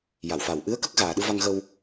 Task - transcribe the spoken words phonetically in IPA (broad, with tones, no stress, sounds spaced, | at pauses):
j a˨˩˨ w f a˨˩ w ʔ ɨ˧˥ ə̯ k ə˦˥ k̚ ɣ aː˨˩ ɗ ɨ˧ v a˧ ŋ ɣ ə˧ w